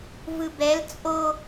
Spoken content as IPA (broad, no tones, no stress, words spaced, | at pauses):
vɯbɛl t͡sʼo